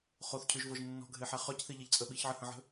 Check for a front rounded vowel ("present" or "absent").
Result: present